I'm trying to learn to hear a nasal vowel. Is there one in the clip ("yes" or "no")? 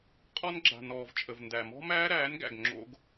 no